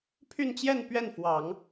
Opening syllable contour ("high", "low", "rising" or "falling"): falling